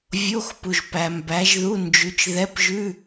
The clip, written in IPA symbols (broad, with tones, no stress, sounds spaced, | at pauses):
vʲ o˧˥˧ x p u˨ ʒ p æ˨ m b æ˨˥ ʒ ð u˧˥˧ n d͡ʒ ʉ˨˥ t͡ʃ ð ɛ˧˥˧ p ʒ ʉ˧˥˧